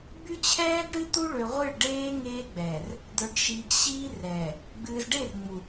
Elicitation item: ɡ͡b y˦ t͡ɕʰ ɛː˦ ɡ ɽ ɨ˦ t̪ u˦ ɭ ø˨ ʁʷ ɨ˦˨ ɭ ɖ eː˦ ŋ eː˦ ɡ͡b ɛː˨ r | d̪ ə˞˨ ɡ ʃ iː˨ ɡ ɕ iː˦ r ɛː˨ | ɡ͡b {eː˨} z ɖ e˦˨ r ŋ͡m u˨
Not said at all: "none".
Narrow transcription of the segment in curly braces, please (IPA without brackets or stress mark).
ɨː˨